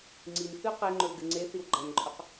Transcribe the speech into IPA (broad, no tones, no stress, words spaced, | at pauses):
ŋ͡ǀinθʉ qeŋ͡ǃɵwɡɨ ŋ͡ǀeθiw ɡ͡ǃɐnǃʼɵq